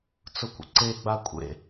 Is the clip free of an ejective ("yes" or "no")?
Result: no